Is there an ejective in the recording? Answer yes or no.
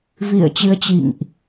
no